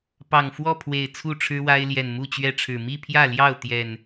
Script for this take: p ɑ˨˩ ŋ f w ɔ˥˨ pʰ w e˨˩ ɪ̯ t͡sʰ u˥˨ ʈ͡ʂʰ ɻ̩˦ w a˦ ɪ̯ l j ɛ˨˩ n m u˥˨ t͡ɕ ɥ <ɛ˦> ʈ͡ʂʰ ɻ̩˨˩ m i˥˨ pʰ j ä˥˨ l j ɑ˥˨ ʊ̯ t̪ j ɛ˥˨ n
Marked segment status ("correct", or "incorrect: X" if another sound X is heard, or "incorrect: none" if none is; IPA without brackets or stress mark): correct